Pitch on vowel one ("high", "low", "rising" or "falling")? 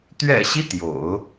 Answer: low